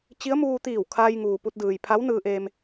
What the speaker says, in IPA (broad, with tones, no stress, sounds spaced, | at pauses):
t͡ɕ i˧˥ ə̯ m uː˧ t̪ iː˧˩ w kʰ aː˧ j ŋ uː˩ p u˧ t̚ d ɯː˩ j pʰ a˧˥ w n ɯː˧ ʔ eː˧ m